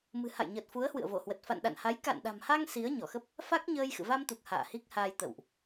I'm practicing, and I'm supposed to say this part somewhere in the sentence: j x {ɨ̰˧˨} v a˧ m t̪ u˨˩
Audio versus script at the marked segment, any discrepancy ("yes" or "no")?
no